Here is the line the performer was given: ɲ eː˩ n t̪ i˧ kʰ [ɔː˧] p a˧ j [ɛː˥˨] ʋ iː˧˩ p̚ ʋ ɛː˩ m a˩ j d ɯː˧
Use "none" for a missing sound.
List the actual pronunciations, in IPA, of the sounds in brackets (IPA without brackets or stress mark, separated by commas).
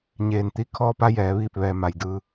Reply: ɔː˧, ɛː˩˧